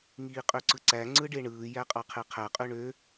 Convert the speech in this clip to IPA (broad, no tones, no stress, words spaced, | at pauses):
ŋiːqʼøǀɯǀæ ŋ͡ǀɯɖeɳɯː jæqʼɑqʰeqʰæ qʼøɳø